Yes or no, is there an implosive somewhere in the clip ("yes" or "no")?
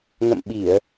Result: yes